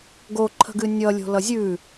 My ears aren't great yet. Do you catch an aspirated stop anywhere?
yes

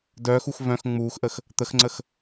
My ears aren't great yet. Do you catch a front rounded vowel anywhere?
yes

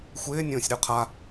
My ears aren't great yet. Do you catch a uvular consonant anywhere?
yes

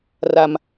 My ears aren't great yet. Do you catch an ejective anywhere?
no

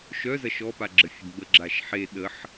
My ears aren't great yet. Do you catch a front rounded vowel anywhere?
yes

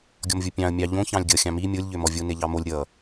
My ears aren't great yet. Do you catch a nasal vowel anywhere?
yes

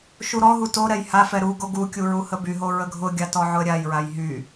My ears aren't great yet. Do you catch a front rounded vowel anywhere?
yes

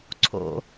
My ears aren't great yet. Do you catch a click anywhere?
yes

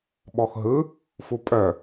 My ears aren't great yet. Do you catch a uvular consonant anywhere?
no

